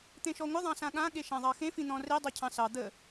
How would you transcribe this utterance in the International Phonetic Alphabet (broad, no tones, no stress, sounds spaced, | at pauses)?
t̪ ẽ ʃ ɔ ŋʷ ə ðˤ ɑ̃ s ã ɠ ã ɠ e ʃ ã ðˤ ɑ x ẽ f ĩ n̪ ɔ̃ r e dˤ o cʰ ɑ̃ s ɑ d̪ ə